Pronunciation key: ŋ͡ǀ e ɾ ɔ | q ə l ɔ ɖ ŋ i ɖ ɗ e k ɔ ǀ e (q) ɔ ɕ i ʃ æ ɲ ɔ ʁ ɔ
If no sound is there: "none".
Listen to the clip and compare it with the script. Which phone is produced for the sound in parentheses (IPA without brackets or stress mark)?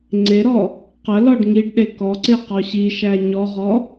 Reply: q